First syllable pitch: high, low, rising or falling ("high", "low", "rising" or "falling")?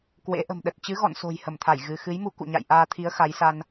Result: rising